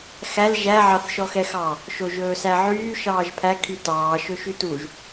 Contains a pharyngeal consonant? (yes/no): yes